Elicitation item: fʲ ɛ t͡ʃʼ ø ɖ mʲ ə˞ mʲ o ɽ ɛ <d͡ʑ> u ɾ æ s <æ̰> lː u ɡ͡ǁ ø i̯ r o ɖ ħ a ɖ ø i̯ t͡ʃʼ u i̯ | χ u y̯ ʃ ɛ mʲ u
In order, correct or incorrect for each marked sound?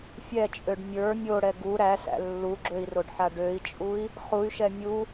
incorrect: ɡ, correct

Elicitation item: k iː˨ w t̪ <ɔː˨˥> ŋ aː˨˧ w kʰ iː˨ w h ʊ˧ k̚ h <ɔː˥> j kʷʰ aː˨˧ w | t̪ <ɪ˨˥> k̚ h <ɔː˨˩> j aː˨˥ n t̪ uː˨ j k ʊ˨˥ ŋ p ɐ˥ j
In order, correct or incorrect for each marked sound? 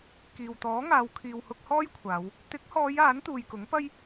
correct, correct, correct, incorrect: ɔː˨˧

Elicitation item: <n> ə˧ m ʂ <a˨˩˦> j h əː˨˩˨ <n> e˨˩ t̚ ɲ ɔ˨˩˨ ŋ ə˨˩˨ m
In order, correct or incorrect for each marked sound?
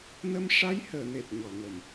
correct, incorrect: a˧˥, correct

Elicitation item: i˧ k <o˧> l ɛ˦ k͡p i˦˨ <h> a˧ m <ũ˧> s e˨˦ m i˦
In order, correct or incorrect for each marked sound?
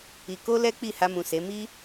incorrect: o˦, correct, incorrect: ũ˨

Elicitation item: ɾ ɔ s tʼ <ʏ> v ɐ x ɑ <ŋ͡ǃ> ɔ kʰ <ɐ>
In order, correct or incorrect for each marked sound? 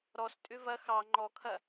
correct, correct, correct

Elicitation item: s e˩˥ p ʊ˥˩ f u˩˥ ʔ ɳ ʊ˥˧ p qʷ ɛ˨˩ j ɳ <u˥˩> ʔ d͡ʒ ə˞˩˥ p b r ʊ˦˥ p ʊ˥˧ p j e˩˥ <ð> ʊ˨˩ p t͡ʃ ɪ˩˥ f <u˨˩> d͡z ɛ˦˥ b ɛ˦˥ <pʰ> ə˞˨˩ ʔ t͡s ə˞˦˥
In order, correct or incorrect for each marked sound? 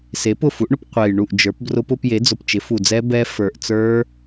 correct, incorrect: d͡z, correct, incorrect: f

